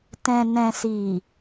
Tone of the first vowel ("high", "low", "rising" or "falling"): low